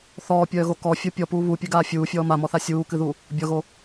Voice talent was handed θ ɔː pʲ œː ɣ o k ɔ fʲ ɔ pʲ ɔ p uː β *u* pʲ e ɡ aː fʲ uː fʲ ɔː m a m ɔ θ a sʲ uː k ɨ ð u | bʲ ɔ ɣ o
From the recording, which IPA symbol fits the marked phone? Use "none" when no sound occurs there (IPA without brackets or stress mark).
u